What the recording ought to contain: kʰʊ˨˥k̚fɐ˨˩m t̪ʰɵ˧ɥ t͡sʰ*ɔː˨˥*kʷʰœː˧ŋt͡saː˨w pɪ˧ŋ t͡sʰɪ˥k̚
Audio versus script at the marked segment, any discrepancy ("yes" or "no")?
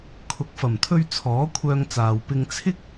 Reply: no